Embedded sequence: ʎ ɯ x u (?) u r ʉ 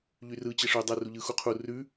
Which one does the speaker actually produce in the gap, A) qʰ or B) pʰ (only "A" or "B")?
A